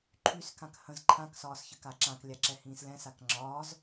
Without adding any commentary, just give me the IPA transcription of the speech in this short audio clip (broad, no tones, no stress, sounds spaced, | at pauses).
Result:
ǃʰ y s k ã k h ə̃ z ǃʰ ã k s ɒː s ç ə k a ǁ ã k lʲ a ǁ ɛ h ĩː s l ɛ̃ s a k ŋ͡ǁ ɒː z